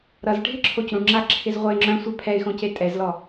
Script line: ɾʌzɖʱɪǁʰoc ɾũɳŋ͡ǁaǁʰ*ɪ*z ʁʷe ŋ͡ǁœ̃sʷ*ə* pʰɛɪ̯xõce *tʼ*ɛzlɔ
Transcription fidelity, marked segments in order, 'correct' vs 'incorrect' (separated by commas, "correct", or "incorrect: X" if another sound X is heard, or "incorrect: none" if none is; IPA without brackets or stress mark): correct, incorrect: œ, correct